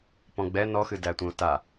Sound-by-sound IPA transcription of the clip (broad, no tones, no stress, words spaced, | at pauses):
pɔ̃ɡ͡bɛ nɔxɨ dætʷẽʊ̯ta